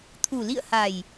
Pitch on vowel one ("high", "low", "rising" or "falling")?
low